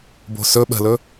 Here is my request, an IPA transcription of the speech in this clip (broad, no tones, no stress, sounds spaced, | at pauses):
b o̤ s ɵ ɓ ə̤ l ɵ